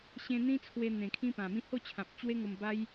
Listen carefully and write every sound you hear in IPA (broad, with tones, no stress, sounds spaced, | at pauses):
ɕ ẽ˧ n̪ ĩ˦ t͡sʰ w e˧ n̪ ẽ˨˩ kʰ ĩ˦ p ã˨˩ m ĩ˥˧ h o˥˧ t͡ɕʰ ã˨ p̚ t͡ɕ w e˦ ŋ o˧ m b a˧ j